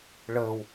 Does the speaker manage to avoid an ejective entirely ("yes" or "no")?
yes